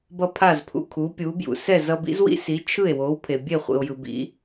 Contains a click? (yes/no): no